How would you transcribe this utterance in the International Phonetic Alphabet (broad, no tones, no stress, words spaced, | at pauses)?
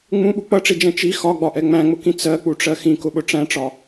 ŋ͡mũɓu k͡pʌʈ͡ʂid͡ʒɛ̃ t͡ʃi xɒɡ͡bɒʔɛ ŋ͡mæ̃ŋ͡mʊkĩ t͡sɜk͡puʈ͡ʂɜ xĩkʊɓʊ ʈ͡ʂæ̃ʈ͡ʂɒ